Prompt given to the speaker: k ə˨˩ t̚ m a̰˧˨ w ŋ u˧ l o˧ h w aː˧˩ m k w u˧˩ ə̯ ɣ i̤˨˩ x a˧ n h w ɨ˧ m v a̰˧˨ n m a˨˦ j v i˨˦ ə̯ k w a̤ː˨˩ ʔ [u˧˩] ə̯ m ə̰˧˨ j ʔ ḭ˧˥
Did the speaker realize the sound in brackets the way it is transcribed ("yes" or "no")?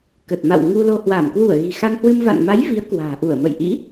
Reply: yes